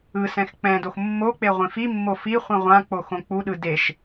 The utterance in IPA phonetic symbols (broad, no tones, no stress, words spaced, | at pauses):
ɯ sɛ̃xk͡pɛ̃dox mːok͡pe ʁʷĩfimːo fi χʷĩʁʷãk͡po xõk͡puɗɯ deʃ